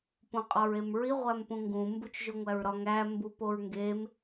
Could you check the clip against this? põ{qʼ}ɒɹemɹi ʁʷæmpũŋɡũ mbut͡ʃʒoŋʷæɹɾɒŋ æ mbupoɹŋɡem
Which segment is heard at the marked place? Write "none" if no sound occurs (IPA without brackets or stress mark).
qʼ